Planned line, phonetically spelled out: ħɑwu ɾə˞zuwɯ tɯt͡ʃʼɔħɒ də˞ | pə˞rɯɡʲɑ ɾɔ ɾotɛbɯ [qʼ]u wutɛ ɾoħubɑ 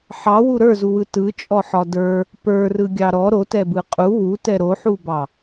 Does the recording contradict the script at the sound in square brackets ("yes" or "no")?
no